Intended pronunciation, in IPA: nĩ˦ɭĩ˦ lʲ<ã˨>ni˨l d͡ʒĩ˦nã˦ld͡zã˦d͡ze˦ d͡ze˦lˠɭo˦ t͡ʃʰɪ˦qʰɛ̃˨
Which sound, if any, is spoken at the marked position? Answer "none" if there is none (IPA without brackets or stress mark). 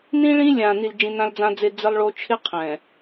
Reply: ã˨